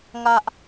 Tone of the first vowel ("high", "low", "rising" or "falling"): high